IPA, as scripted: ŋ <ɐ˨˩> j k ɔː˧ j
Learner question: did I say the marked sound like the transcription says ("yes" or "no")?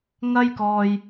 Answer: no